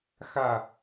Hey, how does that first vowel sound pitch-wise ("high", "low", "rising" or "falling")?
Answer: low